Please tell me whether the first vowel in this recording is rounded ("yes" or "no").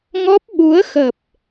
yes